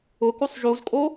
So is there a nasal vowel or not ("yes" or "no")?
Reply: no